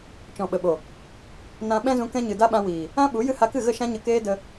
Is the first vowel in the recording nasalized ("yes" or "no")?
yes